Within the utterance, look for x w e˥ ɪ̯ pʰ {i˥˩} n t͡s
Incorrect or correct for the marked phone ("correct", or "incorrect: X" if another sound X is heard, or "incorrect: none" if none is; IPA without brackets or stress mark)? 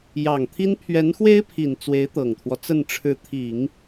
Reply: incorrect: i˨˩